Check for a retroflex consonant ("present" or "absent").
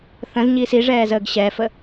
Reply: present